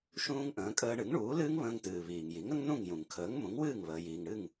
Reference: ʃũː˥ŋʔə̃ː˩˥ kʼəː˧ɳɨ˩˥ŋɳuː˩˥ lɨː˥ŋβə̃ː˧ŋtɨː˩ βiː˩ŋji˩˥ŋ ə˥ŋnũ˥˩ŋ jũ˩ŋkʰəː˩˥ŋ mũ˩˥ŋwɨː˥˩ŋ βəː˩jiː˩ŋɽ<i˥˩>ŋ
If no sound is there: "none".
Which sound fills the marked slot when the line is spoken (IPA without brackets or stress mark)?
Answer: ɨ˥˩